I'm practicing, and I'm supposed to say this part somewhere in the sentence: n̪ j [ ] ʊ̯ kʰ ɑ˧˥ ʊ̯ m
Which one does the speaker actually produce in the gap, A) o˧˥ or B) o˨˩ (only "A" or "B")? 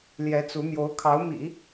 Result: A